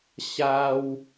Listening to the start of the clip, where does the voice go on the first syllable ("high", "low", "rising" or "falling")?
high